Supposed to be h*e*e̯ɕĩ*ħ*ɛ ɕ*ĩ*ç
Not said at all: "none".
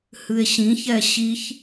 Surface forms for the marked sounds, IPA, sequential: ɨ, ç, i

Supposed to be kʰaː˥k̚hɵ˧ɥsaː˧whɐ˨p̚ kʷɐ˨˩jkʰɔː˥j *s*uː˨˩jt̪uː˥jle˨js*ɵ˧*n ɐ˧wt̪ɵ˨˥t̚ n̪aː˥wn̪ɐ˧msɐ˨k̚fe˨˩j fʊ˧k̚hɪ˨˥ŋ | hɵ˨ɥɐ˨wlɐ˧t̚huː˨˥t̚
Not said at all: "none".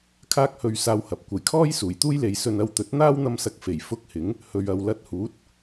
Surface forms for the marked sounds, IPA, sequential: s, ɵ˧

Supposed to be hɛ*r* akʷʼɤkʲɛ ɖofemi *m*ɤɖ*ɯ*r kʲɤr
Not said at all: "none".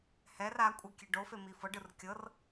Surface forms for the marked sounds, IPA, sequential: r, f, ɯ

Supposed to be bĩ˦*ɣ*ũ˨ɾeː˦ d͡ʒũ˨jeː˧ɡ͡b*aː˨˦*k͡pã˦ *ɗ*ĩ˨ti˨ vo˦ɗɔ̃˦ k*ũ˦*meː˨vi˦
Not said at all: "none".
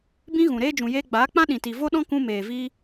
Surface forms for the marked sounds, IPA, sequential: ɣ, aː˨˦, ɗ, ũ˦

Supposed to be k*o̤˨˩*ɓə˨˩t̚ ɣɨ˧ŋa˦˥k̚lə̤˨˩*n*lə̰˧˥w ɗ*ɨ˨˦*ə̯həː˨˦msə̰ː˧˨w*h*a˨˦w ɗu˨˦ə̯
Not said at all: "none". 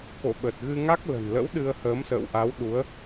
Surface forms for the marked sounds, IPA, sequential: o̰˧˨, n, ɨ˧, ʔ

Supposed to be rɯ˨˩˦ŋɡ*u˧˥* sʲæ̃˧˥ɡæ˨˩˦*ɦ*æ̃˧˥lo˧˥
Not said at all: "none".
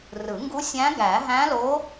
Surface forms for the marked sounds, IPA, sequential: u˧˥, ɦ

